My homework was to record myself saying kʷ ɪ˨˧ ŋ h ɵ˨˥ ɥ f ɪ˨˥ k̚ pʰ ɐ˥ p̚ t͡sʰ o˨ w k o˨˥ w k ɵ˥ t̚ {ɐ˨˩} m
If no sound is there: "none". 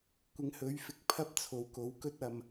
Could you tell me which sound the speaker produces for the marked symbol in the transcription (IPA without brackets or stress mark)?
ɐ˧